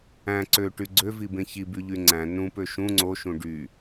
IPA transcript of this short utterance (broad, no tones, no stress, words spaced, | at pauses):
æ̃ ǀøʈy ɡ͡ǀøvibẽ çibyʎy ŋ͡ǀæ̃ nũpø ʃũ ŋ͡ǀoʃũ ɖy